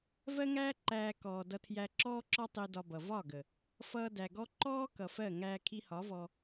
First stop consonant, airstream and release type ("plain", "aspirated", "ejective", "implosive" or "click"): click